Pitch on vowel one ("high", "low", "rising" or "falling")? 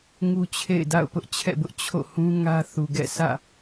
high